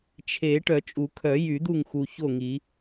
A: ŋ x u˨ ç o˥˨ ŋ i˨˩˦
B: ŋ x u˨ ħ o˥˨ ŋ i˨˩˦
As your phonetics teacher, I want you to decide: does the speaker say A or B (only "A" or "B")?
A